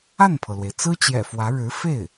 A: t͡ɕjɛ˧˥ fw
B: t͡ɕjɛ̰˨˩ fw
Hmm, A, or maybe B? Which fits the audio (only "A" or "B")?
B